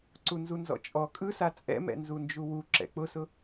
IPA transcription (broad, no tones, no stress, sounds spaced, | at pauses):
ǀ u n z u n z ɔ̰ t͡ʃʼ ɔ kʼ ɯ s a t͡sʼ ɛ̰ m ɛ̰ n z u n d͡ʒ u w u ǁ ɛ̰ k͡p ʊ s ʊ